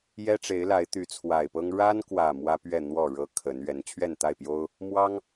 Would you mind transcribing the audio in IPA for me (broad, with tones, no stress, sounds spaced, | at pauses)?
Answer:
j ɛ˦ ʈ͡ʂ e˨˦ ɪ̯ l a˨˦ ɪ̯ t̪ y˨˦ t͡sʰ w a˨˩ ɪ̯ p ɤ˦ ŋ ɻ a˦ n k w ä˨˩ m w ä˦ p ɥ ɛ˥˨ n̪ w ɔ˥˨ ɻ ɤ˦ kʰ ə˨˦ n ɥ ɛ˨˦ n t͡ɕʰ ɥ ɛ˥˨ n t̪ a˥˨ ɪ̯ p j o˦ ʊ̯ | m w ɑ˦ ŋ